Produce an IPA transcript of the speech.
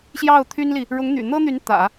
ɕ j ɑ˥˩ ʊ̯ t̪ʰ y˥ n l i˨ | ɻ ʊ˧˥ ŋ n̪ y̰˨˩ n̪ ɤ˥ n̪ y˧˥ n t̪ ä̰˨˩˦

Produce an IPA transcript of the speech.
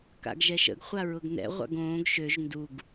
k a̰ ɡ ʒ ɛ ʃ ə̰ ɡ χʷ a ɹ ʊ ɡ n ɛ̰ ʁʷ a̰ ɡ õː ɡ ʃ ø ʒ n d u ɡ

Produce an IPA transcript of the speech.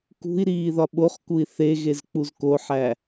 k ṳ i̯ ɾ iː ð ɒ ɓ o χ k u i̯ θ e ɣ e z k͡p u z k o ħ æ

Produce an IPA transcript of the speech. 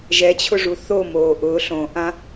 ʒ ɛ t͡ɕʰ ʊ ʐ u θ o m oː ʔ ʊː ɬ õ ʔ ã

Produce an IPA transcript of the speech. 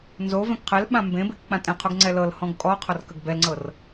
n z o v ɛ̃ k qʰ ɛ l ɓ ã m b ẽ b e k k͡p ã tʼ ɛ̃ qʰ o ɡ ŋ͡ǀ ɛ l ɤ l h ɔ̃ ɡ kʼ ɔ qʰ ɔ r k ə ɡ b ɛ l ŋ͡ǀ ɤ r

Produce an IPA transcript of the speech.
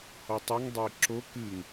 h ɔ tˤ o ŋ dˤ ɘ ɪ̯ ǁ o k ɨ ŋ

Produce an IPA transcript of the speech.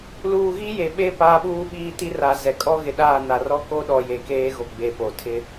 l uː˨ ɣ i˦ j e˨ ɓ e˦˨ p aː˦ ɓ uː˦ ɓ iː˦ t i˦ r a˨ z ɛ˨ kʼ ɔ˦ ɣ ɪ˨ ɗ aː˦˨ n a˨ r ɔ˦ k o˦ ɗ ɔ˨ j e˨ k eː˦ ɣ o˨ ɡ͡b e˨ p o˨ tʰ ɪ˦

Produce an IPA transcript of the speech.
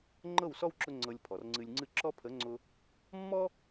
ŋ͡ǃ ɤ˦˨ w s ɔ˦ w ǁ ʊ˧ ŋ͡ǀ ɤ˧ lʲ pʰ ɔ˨ r ŋ͡ǀ ɨ˧ lʲ ŋ͡ǀ ɨ˧ ǁ ɔ˦ pʰ ə˨˦ ŋ͡ǀ ʊ˧ | mː ɔ˦

